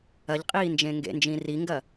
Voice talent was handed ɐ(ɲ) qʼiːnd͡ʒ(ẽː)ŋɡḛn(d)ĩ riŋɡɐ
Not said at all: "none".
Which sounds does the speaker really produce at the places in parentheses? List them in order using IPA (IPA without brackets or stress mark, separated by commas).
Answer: ʎ, ẽ, d͡ʒ